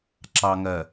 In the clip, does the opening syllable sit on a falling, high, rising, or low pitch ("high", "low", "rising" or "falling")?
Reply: low